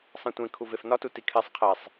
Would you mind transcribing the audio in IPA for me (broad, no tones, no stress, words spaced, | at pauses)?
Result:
sˤẽtʷẽ kʰuvefnɒtu tikʰesˤ qʰesˤ